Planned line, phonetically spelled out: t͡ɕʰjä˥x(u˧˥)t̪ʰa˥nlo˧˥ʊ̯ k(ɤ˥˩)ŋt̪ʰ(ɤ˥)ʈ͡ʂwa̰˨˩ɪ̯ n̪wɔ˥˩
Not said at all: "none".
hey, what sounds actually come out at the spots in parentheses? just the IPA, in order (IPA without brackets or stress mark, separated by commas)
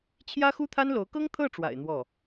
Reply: u˥, ɤ˥, ɤ˥˩